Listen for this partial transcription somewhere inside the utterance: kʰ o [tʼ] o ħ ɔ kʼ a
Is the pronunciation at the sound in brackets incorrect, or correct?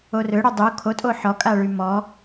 correct